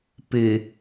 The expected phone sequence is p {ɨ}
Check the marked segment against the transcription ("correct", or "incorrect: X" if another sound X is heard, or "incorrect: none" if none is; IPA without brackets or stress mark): correct